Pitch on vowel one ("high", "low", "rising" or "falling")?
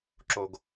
low